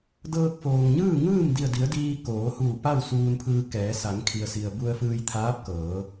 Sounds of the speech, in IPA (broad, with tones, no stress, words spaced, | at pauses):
dɤː˧k̚foː˩ŋɲɯː˥˨ ŋɯː˥˨m di˧˩ə̯di˩˧ə̯ diː˧koː˩˧ huː˧˩pa˥˨w suː˧npʰɯː˧kɛː˩˧ sa˩˧ŋkʰi˩ə̯si˩ə̯ bu˧ə̯fɯː˧jt̪ʰaː˧˥p̚kɤː˩˧